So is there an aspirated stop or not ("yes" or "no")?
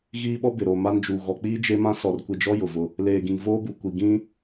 no